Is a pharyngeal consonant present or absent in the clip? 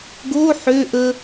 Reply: present